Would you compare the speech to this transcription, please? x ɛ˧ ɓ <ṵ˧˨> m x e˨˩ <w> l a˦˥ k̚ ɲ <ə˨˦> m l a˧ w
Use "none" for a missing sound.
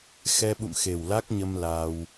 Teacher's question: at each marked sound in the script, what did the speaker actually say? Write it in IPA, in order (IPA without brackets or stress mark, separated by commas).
ṵ˧˨, w, ə˧